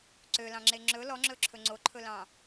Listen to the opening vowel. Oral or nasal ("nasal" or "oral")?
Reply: oral